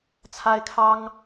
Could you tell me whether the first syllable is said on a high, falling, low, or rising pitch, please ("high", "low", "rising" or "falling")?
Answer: high